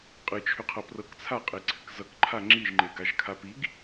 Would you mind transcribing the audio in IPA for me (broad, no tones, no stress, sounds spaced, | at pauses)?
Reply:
qʼ ɨ t͡ʃʰ ʏ qʰ ʌ p r ɤ k t͡sʰ a qʼ e ǀʰ ɨ k z ʌ k ǃʰ a ŋ͡ǁ i ʒ ŋ͡ǃ e ɡ a ʒ kʰ a p i ɡ